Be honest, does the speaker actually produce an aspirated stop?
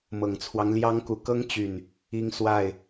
yes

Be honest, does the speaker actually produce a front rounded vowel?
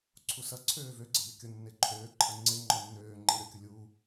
yes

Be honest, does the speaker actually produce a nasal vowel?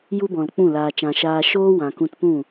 yes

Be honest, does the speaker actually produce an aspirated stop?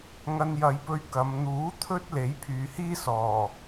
yes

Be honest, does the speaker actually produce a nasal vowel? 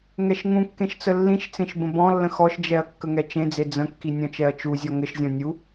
yes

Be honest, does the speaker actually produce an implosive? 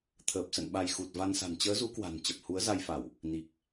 yes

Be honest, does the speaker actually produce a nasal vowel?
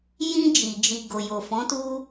yes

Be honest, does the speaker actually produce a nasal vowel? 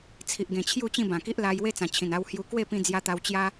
yes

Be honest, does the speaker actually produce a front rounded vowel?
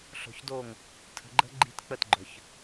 yes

